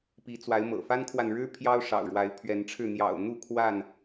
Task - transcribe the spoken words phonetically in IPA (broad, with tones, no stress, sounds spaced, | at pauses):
p i˨˦ t͡s w a˨˦ ɪ̯ m ɤ̰˨˩ f a˦ n kʰ w a˨ n ɻ ɻ̩˦ pʰ j ɑ˦ ʊ̯ ʂ ɑ̰˨˩ ʊ̯ ɻ w a˨˦ ɪ̯ pʰ ɥ ɛ˨˦ n ʈ͡ʂʰ ɻ̩˥˨ n̪ j ɑ̰˨˩ ʊ̯ n̪ u˥˨ kʰ w a˥˨ n